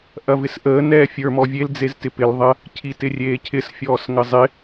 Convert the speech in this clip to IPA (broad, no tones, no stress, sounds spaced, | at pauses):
ʔ ɐ v ɪ s ʔ əː n ɛː fʲ ə˞ m ɔ vʲ e l d͡z e z t ɪ p ɪ l ðˤ ɐ | cʰ i t ɪ rʲ eː cʰ ɪ s fʲ ɔː s ŋ ə zˤ ɪ